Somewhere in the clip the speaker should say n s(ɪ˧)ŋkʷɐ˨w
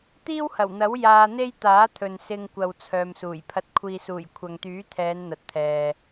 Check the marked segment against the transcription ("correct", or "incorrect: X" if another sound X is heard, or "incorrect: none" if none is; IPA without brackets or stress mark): correct